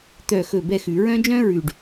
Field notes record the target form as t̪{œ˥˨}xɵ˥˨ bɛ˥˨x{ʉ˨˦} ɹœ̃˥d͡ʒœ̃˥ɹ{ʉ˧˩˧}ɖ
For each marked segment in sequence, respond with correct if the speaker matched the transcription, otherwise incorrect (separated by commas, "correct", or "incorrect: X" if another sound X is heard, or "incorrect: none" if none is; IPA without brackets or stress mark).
correct, incorrect: ʉ˧˩˧, incorrect: ʉ˨˩